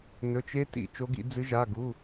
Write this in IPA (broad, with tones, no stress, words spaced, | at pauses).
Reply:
nɵ˩˧˩t͡ʃe˦˥tḭ˧˩˧ t͡ʃo˨˦ɡḭ˧˩˧d͡zɨ˨˦ʒa˩˧˩ ɡu˩˧˩